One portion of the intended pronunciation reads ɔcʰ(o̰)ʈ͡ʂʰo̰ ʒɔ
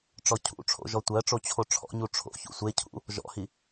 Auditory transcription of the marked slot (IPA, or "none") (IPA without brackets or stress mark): ṵ